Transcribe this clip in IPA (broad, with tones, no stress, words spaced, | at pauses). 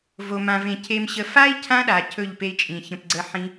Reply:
vo˨mã˨vẽ˨ cʰe˨mɕə˨ fa˦i̯ cʰã˦ɗa˨ cʰɵ˦˨ʎ pe˧i̯t͡ʃʼĩ˨ çə̃˨pɡ͡ǀə˨˦ ħĩ˧